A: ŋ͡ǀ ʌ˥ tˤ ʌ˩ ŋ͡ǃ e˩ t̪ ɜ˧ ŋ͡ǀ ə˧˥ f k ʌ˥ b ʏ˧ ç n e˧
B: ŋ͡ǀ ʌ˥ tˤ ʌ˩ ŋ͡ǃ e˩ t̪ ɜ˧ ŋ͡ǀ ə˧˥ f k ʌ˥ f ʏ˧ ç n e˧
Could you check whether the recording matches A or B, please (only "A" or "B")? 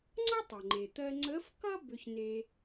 A